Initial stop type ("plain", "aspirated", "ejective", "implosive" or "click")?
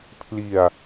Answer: aspirated